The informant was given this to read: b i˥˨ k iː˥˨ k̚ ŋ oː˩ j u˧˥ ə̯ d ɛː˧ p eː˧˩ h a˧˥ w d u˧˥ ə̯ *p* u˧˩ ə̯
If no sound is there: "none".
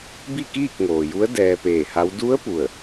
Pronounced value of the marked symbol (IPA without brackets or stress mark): p